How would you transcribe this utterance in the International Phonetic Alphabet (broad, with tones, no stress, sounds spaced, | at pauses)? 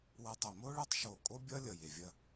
w ɐ˧ tˤ ɐ˧˩ m o˥ ɭ ʌ˥ tˤ ʃ o˧˩ kʼ o˥ bʲ ʌ˥ lʲ ʌ˧˩ j e˧˩ vʲ ɐ˥˧